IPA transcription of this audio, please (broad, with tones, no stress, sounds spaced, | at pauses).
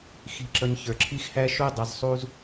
x i̤˨ ǁ ʌ˨ ɲ ç ə˞˩ ǁʰ i˦ x h æ˥ ʃ u˥ dˤ ʌ˨ z sˤ u˦ z